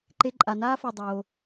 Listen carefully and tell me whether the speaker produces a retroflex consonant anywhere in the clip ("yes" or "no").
no